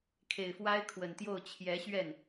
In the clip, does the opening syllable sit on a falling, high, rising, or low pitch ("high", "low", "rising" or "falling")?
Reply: low